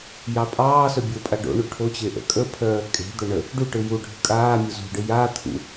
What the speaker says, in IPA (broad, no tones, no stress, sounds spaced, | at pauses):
j ɑ pʼ ɑː s œ bʲ o pʼ a ɖ o̰ ɳ u ʈʰ o t͡ɕ e ʔ ə̰ kʼ ə pʰ œː kʼ e̤ d̪ œ ɳ ə | ɖ u ʈ ɯ j u ɖʱ ɯ kʼ aː mʲ o z ṳ ɖ ɯ j a t̪ʰ ṵ